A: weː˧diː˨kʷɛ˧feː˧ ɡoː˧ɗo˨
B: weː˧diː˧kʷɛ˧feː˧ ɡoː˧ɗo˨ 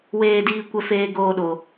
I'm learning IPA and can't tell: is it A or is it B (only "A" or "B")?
B